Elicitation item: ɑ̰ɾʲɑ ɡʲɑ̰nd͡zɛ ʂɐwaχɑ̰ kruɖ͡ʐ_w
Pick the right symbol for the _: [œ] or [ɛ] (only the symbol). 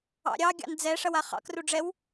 ɛ